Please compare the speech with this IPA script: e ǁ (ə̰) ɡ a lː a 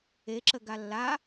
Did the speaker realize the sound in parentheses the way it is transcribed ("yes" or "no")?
no